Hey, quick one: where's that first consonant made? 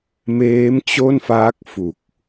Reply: lips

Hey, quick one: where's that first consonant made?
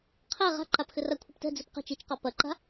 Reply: uvula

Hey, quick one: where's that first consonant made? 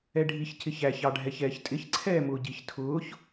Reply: retroflex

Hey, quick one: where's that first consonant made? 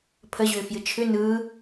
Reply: lips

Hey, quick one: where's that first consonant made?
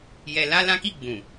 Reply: palate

